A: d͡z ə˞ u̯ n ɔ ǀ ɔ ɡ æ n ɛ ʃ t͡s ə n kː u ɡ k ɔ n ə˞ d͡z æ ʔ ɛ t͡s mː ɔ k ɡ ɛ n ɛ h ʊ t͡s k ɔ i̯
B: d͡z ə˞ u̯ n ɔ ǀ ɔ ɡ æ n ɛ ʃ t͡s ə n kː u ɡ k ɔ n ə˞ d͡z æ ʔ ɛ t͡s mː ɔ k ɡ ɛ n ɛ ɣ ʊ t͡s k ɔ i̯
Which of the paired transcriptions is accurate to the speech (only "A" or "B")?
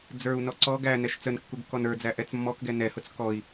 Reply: A